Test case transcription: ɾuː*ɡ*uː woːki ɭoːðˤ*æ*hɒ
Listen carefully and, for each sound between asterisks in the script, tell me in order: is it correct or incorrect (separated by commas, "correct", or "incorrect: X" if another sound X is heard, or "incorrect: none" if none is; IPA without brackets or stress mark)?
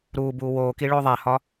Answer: incorrect: b, correct